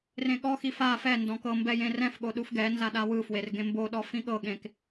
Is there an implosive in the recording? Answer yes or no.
yes